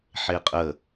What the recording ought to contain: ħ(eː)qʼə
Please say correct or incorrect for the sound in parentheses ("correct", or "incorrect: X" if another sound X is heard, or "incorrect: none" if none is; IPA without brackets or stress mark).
incorrect: e